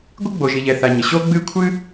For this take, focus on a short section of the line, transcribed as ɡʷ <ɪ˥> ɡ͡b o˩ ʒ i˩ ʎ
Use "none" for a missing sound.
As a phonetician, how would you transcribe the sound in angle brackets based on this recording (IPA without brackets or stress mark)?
ɪ˥